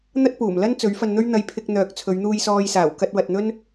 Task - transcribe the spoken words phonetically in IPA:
n̪ɐ˥t̚puː˨˩m lɐ˥n t͡sɵ˨˥ɥfɐ˧nn̪ɵ˥ɥ n̪ɐ˧jpʰɪ˧k̚n̪œː˨k̚ t͡sʰɵ˨˧ɥn̪uː˧jsɔː˧jsaː˨˩w kɐ˧t̚wɐ˨t̚n̪ɵ˥n

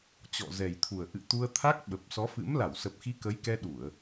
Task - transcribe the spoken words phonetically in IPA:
t͡ɕɔ̰˧˨zɛ˨˩jt̪ʰu˨˩ə̯ ʔɨ̰˧˨ t̪u˧ə̯t̪ʰa˦˥k̚ ɓə˨˩p̚sɔ˨˦fɨ̰˧˥m la˧˩wsə˨˩p̚xi˨˦ kə˨˦jkɛ˧ ɗu˧˩˨ə̯

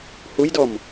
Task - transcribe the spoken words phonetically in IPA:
hujdɔm

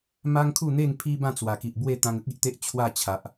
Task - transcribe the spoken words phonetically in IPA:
ma˦ŋkʰu˥˧n̪e˥˧ŋ pʰi˦bã˥˧t͡swa˨˩ ki˨ʔbwe˥˧ t̪ã˧ŋə˦k̚i˨ʔt̪e˦ʔ t͡ɕʰwa˥˧ t͡ɕʰa˨ʔ

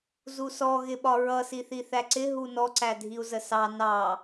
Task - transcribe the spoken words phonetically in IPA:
zusɔ ɣɪɓɒɹʌ siθiθæǀɪ ɦunɔ ǀædʱiu̯zəsɑ nɑ

